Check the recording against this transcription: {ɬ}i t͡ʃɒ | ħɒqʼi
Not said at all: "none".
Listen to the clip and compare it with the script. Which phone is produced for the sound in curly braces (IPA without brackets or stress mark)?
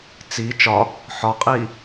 t͡s